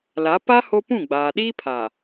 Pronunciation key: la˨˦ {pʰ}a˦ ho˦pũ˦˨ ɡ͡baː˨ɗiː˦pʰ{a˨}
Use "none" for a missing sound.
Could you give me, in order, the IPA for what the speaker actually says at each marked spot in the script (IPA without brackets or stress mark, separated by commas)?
p, a˨